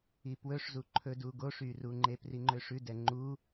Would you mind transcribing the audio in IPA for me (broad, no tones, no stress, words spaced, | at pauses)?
ipwɵʂzu ǃʰɵdu ɡoʂyruŋ͡ǃe priŋ͡ǃøʂʉ dɛŋ͡ǃu